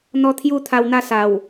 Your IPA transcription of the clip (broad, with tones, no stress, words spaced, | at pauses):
n̪ɔ˧ t̪ʰju˥˧t̪ʰa˧wn̪a˥˧ sa˨˩w